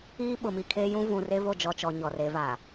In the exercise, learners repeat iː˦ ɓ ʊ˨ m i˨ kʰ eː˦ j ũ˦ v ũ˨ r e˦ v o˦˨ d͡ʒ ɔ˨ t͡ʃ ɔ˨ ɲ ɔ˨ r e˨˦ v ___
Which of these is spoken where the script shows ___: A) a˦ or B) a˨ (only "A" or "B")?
B